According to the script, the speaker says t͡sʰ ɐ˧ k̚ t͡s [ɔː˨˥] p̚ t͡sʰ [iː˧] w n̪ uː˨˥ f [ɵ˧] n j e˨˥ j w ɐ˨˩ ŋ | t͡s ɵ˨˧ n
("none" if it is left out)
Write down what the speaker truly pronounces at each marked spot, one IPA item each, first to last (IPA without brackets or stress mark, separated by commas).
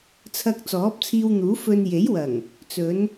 ɔː˨˥, iː˧, ɵ˧